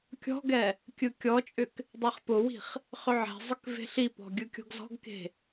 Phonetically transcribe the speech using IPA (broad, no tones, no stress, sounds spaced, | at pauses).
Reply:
kʲ ɔ̤ ɡ ɛ | kʲ ɯ kʲ ɔ t͡ʃʼ ʏ k | dˤ e χ p ʊ w i̤ χ | χ ʏ ʕ ɛ̤ zˤ ʏ k v e̤ ɬ i p ɔ̤ ɡʲ ɯ kʲ ɔ̤ ɡ z ɔ̤ ɡ k e̤